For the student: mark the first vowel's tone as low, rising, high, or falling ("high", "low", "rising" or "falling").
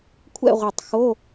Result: falling